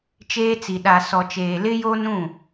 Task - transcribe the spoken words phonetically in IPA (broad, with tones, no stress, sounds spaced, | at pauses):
t͡ʃ eː˦ t͡s i˨ ɗ a˨ s ɔ˨ t͡ʃ eː˨ l ɪ˦ j o˦ n ũ˦˨